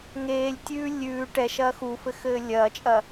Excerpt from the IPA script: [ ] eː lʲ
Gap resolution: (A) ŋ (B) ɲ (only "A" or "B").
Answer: A